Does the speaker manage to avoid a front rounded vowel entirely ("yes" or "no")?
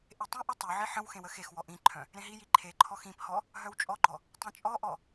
no